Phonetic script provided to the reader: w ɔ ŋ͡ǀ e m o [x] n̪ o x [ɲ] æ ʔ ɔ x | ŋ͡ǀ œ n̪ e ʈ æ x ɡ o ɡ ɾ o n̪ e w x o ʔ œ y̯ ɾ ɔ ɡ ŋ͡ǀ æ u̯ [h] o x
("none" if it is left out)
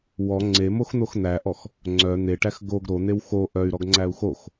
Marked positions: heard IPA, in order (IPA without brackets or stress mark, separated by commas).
x, n̪, x